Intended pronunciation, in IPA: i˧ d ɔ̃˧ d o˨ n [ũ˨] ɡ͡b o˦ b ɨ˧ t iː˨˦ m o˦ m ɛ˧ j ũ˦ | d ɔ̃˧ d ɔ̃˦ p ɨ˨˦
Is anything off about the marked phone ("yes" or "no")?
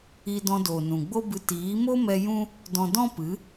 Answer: no